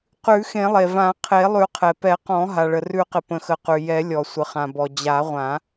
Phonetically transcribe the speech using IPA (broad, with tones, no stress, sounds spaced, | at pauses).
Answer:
q ʉ˨˩˦ x ẽ˨˩˦ lˠ e˩ v ã˨˩˦ qʰ e˨˩˦ lˠ ʉ˨˩˦ qʰ ɛ˩ p ɛ˨˩˦ q ɔ̃˨˩˦ ɦ a˩ ɭ ə˩ r ʉ˨˩˦ q ɪ˩ p ə̃˩ x ə˩ q ʉ˩ j ɛ˨˩˦ lʲ ɔ˩ sʷ ə˩ χ ã˩ b ɔ˩ d͡ʑ a˨˩˦ ʁʷ ã˨˩˦